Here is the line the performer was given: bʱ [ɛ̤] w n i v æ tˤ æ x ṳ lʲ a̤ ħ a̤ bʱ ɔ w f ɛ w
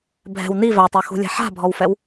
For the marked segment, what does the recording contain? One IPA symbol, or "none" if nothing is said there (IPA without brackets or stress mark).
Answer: ɛ̤